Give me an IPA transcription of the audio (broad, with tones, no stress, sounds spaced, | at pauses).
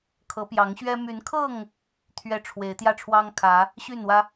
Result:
kʰ ɤ˨˦ p j ɑ˨˦ ŋ ɕ ɥ ɛ˦ m y˨˦ n kʰ ɤ˥˨ ŋ | t̪ʰ ɥ ɛ˦ ʈ͡ʂʰ w e˨˦ ɪ̯ t̪ j ä˥˨ ʈ͡ʂʰ w ɑ˦ ŋ kʰ ä˨˦ | ɕ y˥˨ n w ä˦